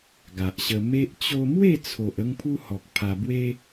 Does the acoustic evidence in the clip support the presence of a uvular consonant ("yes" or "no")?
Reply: no